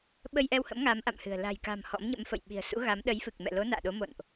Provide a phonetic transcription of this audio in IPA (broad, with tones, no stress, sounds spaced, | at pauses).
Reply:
ɓ ə˧ j ʔ ɛ˧ w h ə̰˧˥ m ŋ a˨˦ m ʔ a̰˧˨ m h ɨ̤˨˩ ə̯ l a̤˨˩ j k a̤˨˩ m h ɔ̰˧˥ m ɲ ə̰˧˥ m f ə̰˧˨ j ɓ i̤˨˩ ə̯ s ṵ˧˥ ɣ a˨˦ m ɗ ə˨˦ j f ɨ˨˩ k̚ m ɛ̰˧˨ l o˨˦ n a̰ː˧˨ ɗ o˨˦ m o̰˧˨ n ʔ